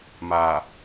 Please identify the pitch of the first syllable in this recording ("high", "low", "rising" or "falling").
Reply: low